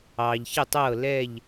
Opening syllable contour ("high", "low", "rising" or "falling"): low